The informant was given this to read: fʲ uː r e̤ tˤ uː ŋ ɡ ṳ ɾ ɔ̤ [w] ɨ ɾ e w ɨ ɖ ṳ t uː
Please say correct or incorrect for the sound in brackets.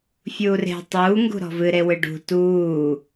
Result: incorrect